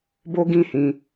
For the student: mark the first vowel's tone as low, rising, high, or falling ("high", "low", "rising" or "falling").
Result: high